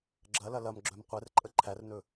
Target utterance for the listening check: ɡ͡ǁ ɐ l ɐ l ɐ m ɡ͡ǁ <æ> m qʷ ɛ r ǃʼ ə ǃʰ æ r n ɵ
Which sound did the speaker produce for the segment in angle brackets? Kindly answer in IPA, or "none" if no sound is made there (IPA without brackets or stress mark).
œ